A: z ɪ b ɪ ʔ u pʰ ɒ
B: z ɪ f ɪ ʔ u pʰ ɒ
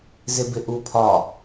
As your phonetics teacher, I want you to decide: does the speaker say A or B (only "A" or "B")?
A